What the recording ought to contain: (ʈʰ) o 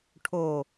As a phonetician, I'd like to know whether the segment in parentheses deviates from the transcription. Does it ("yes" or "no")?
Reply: no